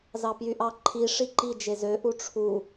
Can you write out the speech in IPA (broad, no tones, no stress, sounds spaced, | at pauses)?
z ɑ p j y ʔ ɑ ǃʰ i ʂ i ǃ i d͡ʒ e z ø ʔ u ʈ͡ʂʰ u